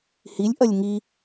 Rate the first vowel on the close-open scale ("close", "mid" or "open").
close